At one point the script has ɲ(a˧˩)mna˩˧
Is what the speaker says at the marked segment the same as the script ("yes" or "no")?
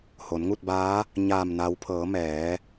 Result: no